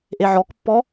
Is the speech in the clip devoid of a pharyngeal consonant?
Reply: no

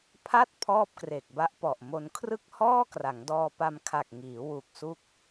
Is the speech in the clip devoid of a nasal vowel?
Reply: yes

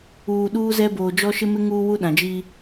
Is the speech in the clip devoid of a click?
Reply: yes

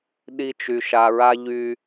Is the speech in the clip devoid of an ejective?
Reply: yes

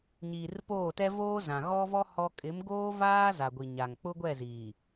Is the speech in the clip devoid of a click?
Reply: yes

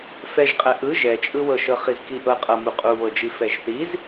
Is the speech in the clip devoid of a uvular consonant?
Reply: no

